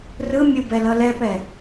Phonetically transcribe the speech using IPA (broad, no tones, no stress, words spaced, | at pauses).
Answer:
rɯ mʲubɛlʌ lɛpɛ